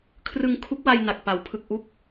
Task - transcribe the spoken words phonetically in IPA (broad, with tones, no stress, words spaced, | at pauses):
kʰrɯ˧ŋ kʰu˦˥k̚wa˧j na˨˩k̚ pa˩˦wpʰɯ˨˩k̚ ʔu˥˩k̚